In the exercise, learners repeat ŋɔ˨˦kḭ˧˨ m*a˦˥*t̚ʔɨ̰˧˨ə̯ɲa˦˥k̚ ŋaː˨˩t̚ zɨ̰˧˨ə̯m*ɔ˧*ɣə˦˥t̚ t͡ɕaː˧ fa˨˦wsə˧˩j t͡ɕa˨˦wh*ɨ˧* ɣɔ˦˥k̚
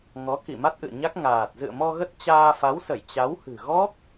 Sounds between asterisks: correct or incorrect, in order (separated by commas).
correct, correct, incorrect